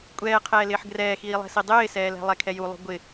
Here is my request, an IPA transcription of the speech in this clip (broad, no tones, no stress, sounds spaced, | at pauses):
kʷʼ ɛː qʰ ɛː l ɪː ħ ɡ r ɛː x iː lˠ ɛ̤ s i dˤ ɪː s ɛː l ɛ̤ lˠ ɛ kʰ ɛ j u lˠ ṳ ɡʷ ɪ